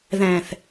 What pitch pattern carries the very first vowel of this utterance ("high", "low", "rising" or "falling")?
low